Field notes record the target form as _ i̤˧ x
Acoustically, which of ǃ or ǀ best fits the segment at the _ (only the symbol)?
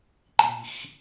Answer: ǃ